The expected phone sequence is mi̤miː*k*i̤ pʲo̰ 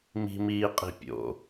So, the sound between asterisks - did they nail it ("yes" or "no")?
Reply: no